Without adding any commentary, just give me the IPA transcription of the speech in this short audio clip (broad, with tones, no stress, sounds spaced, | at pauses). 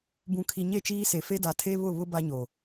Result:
b ũ˨ kʰ i˨ ɲ e˦˨ t͡ʃ iː˦ s e˨ f e˦ d a˨ tʰ e˦ β ʊ˦˨ β ʊ˦ b a˦ ɲ o˨